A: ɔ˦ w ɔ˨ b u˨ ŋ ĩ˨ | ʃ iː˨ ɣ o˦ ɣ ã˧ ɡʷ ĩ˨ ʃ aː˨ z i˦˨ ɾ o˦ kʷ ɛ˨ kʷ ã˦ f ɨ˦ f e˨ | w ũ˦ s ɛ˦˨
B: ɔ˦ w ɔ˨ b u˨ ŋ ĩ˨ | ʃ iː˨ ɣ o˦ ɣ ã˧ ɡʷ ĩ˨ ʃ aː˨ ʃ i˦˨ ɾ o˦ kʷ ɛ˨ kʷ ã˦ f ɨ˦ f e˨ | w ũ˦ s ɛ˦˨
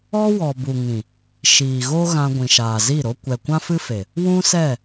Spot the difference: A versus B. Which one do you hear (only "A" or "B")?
A